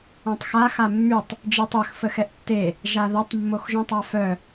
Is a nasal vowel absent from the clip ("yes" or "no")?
no